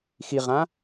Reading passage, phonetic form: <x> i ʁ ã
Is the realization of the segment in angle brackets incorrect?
no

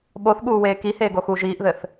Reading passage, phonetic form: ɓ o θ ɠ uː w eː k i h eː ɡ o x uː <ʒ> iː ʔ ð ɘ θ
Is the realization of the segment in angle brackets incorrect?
no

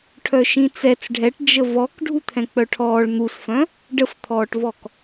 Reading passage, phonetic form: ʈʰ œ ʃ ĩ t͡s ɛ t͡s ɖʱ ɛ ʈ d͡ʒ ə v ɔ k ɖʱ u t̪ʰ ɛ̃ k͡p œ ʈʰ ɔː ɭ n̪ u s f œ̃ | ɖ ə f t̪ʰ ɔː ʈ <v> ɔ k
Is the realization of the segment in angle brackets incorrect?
no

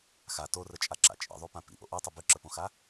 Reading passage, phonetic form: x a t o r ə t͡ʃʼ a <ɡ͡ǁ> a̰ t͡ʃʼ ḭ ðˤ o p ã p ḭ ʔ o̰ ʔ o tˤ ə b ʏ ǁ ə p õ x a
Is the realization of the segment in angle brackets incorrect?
yes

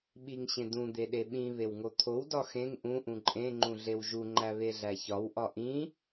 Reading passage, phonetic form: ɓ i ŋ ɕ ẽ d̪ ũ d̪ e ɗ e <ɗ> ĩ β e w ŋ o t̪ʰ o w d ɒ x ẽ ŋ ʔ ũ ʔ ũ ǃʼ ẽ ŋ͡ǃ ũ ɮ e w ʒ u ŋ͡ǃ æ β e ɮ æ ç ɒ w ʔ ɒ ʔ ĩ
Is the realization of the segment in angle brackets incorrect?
yes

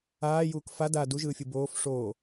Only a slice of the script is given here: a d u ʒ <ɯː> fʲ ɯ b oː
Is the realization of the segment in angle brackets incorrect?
no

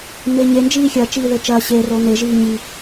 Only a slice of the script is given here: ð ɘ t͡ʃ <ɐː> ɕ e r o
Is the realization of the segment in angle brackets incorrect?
no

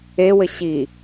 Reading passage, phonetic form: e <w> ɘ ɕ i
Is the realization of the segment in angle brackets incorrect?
no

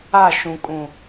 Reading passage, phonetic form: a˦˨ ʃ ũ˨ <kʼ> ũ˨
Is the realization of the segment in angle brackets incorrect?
no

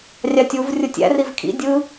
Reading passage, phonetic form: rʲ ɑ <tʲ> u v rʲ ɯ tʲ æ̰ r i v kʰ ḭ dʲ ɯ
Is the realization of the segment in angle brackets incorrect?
no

